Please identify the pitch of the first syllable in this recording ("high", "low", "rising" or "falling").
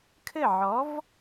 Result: falling